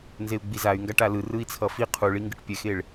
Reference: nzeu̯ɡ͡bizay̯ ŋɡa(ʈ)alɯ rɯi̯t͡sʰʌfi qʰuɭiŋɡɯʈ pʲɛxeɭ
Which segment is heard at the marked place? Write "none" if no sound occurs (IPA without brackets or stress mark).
ʈ